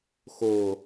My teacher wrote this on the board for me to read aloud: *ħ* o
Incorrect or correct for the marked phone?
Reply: incorrect: x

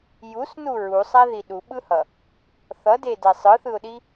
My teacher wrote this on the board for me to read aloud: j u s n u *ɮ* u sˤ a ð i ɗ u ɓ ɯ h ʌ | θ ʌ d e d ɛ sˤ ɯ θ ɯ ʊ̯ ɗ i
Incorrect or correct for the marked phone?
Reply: incorrect: ɹ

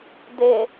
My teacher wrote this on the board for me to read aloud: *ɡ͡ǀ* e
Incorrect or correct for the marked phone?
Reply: incorrect: d̪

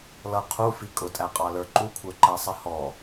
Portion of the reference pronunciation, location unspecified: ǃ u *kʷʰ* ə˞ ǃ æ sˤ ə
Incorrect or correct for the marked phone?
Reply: correct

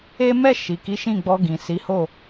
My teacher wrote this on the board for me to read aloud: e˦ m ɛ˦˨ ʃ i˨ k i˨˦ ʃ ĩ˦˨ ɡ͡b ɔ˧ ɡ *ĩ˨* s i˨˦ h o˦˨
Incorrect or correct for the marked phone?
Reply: correct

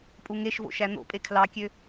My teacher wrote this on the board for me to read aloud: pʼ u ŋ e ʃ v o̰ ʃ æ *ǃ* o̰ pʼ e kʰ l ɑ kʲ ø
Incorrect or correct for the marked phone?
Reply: incorrect: n̪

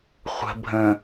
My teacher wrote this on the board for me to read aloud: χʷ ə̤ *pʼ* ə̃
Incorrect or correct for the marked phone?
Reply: incorrect: bʱ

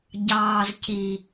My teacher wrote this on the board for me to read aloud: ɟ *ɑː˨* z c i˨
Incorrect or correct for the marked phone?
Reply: correct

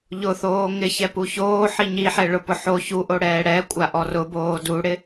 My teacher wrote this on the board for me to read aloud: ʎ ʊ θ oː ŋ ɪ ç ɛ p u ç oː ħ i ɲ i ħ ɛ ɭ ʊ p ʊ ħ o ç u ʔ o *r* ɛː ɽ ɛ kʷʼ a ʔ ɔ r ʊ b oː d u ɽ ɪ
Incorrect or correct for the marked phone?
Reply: incorrect: ɽ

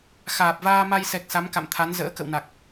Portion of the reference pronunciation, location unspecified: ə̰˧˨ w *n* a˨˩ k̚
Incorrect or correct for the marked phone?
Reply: correct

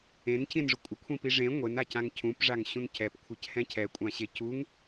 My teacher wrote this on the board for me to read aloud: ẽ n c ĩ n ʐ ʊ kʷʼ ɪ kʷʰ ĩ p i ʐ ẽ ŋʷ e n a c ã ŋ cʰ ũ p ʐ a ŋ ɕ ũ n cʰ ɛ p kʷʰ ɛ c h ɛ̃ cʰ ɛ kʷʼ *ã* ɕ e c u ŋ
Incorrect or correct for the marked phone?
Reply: correct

